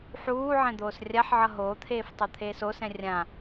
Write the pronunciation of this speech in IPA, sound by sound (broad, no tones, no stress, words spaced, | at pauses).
ħuː ʕɛ̃d̪oːsrʲaħʕʌ ɦoːt̪ʰeːftˤo t̪ʰeːsosɛ̃ rʲã